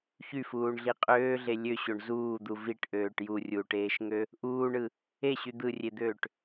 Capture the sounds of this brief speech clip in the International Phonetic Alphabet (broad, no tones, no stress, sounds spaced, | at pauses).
ç y f uː ɳ ɮ i qʼ øː ɮ e lʲ ø ɕ o ɳ z uː d̪ u v i ʈ ʔ øː ʈ j u rʲ uː ʈ eː ʃ ŋ ø | ʔ uː ɳ ɯ | e ɕ y d̪ ɯ rʲ e d̪ øː ʈ